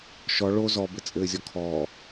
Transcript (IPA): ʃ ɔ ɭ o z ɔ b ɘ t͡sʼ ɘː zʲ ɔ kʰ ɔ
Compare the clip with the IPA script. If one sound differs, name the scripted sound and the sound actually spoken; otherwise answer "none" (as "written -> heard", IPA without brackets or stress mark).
none